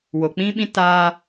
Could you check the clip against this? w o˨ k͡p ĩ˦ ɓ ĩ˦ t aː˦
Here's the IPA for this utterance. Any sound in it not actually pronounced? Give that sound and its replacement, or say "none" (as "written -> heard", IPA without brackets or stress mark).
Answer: none